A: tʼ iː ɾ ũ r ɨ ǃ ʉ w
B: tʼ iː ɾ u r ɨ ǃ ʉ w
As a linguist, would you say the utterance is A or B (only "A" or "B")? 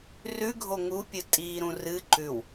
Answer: A